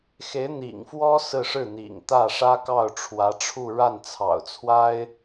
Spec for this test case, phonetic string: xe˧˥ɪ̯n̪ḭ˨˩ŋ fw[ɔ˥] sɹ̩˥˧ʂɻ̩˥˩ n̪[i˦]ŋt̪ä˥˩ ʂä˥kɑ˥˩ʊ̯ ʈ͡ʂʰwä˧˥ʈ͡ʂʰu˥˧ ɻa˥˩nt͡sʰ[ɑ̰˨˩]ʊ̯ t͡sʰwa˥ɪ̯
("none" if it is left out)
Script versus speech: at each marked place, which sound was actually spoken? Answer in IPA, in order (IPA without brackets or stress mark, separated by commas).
ɔ˥, ḭ˨˩, ɑ̰˨˩